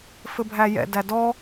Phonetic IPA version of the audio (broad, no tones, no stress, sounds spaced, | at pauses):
f ɘ bʱ æ j ɛ̰ d æ d ɔ